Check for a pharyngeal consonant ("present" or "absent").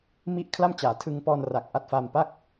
absent